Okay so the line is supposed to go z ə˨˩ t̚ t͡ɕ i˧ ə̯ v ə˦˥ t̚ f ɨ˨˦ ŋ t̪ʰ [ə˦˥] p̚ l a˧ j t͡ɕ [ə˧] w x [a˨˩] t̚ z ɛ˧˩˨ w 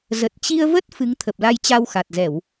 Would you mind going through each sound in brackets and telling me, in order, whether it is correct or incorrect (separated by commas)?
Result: incorrect, incorrect, correct